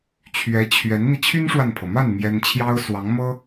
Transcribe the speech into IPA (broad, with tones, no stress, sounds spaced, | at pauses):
t͡ɕʰ ɥ ɛ˧˥ t͡ɕʰ ɥ ɛ˧˥ n n̪ i˧ t͡ɕʰ y˥ n ʂ w a˨ n pʰ ɤ˩ m a˥˩ n m j ɛ˥ n t͡ɕʰ j ɑ˥ ʊ̯ s w ɑ˧˥ ŋ m ɤ˥